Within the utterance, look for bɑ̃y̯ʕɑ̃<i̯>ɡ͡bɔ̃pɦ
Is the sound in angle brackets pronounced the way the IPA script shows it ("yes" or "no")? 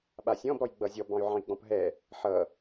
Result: yes